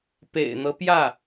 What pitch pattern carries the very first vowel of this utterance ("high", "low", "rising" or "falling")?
low